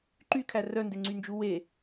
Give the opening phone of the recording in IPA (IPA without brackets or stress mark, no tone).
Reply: ǃ